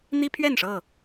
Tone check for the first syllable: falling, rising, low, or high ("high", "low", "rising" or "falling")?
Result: high